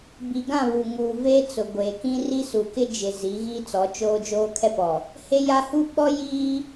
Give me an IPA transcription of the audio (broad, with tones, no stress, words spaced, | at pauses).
bi˨ɡã˦˨ βu˨ŋuː˨veː˦ t͡sʊ˨ɡʷeː˨kĩ˦ ri˦su˨kɪ˦ d͡ʒɪ˨zi˨˦ ɣi˦t͡sɔ˨˦ t͡ʃoː˦ d͡ʒoː˦kʰɛ˦pɔ˨ | he˦ja˦ hu˦ɓɔ˦ jiː˦